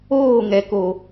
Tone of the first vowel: falling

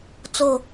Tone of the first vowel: low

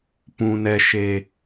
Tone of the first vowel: low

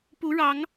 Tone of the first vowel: rising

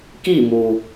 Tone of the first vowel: falling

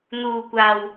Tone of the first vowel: low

